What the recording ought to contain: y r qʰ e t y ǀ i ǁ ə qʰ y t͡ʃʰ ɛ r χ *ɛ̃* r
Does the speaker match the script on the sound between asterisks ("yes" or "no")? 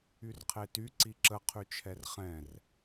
yes